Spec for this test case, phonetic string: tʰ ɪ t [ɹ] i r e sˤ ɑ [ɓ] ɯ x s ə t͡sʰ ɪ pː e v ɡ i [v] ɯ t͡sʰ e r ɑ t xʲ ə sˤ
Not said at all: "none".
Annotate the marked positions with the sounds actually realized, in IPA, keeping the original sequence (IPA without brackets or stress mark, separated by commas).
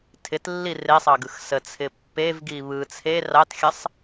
lː, ɡ, β